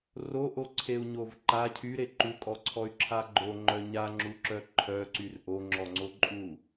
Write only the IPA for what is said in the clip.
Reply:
r o ʔ o ǀʰ e u̯ ɲ o v ǃ a cʰ y ɾ e ǃ u kʼ ɔ ǀʰ ɔ y̯ ǁʰ a ɡ͡ǃ o ŋ͡ǃ œ ɲ a ŋ͡ǁ u ǁ œ ǃʰ œ ǀ y r ʔ o ŋ͡ǁ ɔ ŋ͡ǀ o ǃʼ u

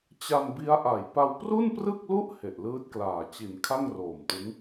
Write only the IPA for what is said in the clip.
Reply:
t͡ɕ a˧ n b i˦˥ a̯ ʔ a˨˩ j p a˧ w p r u˥˩ n p r ɯ˥˩ k̚ l u˥˩ ʔ h e˨˩ ʔ l ɯː˦˥ t̚ k l aː˨˩ t͡ɕ i˩˦ n kʰ a˥˩ ŋ r oː˨˩ m t ɯ˦˥ ŋ

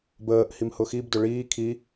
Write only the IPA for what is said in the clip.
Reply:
b əː ʔ h i m h ʊ x i b d ʊ ɭ iː kʰ i

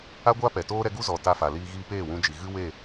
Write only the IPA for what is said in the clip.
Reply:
a˦ ɡʷ aː˦ p ɛ˨ t oː˦ ɾ ɛ˦ ɡ u˦ z ɔ˨ t a˧ f a˨ l iː˧ ɣ iː˧ p eː˦˨ w ũ˧ d͡ʒ i˨ ɣ ɨ˦ w e˦˨

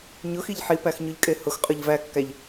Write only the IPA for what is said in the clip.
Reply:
ɲ ʊ x i ʎ ħ i p æ x ɲ ʊ ʎ kʼ e h ʊ x qʼ ʊ ʎ v æ kː æ ʎ

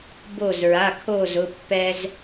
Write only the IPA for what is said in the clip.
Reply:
b o˧˩ z ɹ a˩˧˩ kʰ o˧˩ z ʊ˩˧˩ pː ɛ˧ z

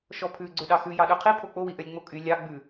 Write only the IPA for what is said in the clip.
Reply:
ʃ ɔ pʰ ʉ ɡ͡ǀ ø ɗ ɑ x ʉ j ɑ ɗ ø qʰ i pʰ o k͡p o w i ʔ œ lʲ ŋ͡m o kʼ y lʲ ɑ ɡ͡b ʉ

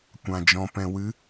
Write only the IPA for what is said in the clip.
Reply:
kʷ ã˨ d͡ʒ ɔ̃˨ p ɛ̃˨ w ɨ˨˦

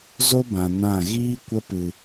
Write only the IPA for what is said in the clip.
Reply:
z o˦ b ã˨ n ã˦˨ ɣ iː˦ kʷ ə˧ p ɨ˨

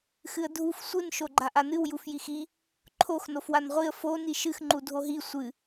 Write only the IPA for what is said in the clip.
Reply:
x ɨ ə̯ dʱ u f sʷ ɨ n ʃ o ɡ͡ǃ a ʔ a n ɨ w j u f j i x i | ǃʰ o x n o f w a n ʁʷ i ə̯ f o n i ʃ ɨ x ŋ͡ǃ u dʱ o ɦ i sʷ ɨ

